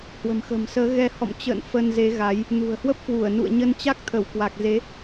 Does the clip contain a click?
no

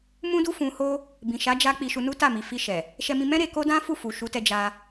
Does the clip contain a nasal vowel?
yes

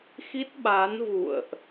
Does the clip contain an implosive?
yes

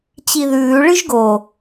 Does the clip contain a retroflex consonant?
yes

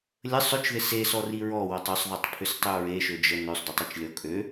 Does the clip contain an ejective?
yes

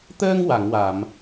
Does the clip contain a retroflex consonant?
no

